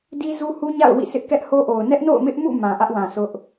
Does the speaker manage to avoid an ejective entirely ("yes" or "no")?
yes